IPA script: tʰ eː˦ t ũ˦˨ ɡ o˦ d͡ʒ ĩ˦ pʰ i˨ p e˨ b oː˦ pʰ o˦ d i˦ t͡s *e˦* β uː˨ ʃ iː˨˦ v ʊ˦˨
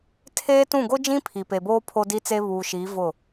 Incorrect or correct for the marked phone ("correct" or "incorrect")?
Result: correct